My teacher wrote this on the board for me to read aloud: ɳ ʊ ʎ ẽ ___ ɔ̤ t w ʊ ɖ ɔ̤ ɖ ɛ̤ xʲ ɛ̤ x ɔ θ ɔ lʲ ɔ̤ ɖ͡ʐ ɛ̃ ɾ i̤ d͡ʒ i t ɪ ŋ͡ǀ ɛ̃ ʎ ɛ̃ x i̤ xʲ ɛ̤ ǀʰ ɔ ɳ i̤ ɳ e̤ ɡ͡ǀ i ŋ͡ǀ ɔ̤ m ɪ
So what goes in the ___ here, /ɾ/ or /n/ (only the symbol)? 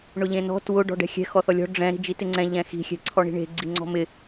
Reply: n